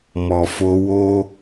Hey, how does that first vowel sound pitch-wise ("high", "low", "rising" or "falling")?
low